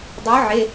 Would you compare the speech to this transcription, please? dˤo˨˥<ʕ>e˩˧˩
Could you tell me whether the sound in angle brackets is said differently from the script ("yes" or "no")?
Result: no